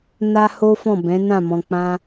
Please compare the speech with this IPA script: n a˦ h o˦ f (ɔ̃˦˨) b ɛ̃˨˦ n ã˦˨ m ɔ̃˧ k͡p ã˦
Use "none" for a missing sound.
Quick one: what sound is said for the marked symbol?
ɔ̃˦˨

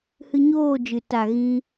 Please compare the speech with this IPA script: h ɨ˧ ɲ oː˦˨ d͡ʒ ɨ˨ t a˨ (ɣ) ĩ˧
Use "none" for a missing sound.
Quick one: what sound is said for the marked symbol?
ɣ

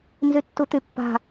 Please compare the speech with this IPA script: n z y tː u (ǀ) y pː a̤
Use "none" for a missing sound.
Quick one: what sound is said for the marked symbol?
t̪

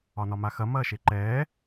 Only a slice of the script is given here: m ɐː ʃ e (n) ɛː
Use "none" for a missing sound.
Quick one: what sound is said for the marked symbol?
ǃ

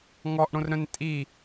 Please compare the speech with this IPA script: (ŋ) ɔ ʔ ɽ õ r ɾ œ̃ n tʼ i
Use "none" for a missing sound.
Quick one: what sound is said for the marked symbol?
ŋ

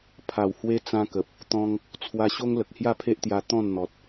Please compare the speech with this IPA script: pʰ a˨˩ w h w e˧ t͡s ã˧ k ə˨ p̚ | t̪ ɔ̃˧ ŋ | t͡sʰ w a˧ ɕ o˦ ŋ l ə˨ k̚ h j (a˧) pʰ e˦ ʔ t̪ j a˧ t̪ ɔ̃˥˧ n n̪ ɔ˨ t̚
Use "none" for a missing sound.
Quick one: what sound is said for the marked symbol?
a˥˧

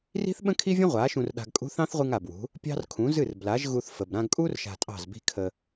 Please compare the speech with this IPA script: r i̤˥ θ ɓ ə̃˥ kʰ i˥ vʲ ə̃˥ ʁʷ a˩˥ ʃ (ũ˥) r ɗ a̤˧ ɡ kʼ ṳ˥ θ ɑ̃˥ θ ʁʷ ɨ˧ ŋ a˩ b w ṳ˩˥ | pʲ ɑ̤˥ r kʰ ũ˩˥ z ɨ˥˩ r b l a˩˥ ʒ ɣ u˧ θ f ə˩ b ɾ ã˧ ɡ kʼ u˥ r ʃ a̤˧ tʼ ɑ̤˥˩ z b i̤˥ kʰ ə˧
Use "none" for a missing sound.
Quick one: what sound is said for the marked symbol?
ũ˧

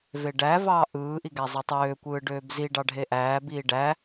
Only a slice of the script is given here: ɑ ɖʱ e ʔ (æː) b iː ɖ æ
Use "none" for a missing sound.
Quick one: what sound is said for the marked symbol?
æː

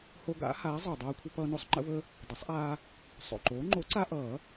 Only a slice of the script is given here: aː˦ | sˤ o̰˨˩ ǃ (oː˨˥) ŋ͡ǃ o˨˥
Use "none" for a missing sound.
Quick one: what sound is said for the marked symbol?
oː˨˥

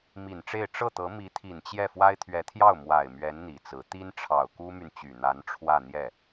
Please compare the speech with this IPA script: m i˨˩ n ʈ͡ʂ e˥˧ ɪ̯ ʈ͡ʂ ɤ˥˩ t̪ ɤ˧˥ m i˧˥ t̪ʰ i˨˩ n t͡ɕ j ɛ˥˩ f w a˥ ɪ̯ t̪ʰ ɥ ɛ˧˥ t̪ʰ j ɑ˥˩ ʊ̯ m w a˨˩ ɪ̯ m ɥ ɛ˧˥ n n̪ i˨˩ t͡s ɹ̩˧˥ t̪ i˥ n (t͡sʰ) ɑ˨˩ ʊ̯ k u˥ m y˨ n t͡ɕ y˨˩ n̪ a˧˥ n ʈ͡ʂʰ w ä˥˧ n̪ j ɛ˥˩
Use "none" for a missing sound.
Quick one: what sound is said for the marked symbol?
ʈ͡ʂʰ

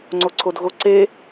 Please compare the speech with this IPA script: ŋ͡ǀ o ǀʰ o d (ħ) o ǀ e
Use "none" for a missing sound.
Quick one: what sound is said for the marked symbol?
ɣ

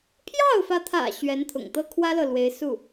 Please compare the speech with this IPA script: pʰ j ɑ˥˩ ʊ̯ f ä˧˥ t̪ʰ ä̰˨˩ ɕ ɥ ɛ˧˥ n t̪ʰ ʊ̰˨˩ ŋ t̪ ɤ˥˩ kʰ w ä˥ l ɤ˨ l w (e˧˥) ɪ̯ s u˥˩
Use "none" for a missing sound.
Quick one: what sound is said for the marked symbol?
e˧˥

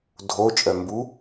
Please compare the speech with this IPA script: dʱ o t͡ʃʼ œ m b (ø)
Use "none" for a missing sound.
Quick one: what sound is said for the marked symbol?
u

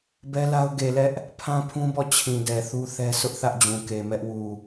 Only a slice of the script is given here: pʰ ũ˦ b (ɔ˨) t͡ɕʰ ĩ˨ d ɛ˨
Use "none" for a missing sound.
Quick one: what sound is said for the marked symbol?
ɔ˦˨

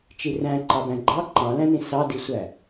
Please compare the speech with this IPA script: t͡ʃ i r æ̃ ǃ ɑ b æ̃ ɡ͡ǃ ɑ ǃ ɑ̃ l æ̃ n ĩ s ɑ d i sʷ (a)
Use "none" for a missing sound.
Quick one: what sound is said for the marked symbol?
æ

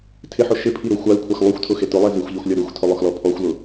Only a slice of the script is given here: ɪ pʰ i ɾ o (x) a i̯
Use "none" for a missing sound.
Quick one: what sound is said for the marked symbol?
xʷ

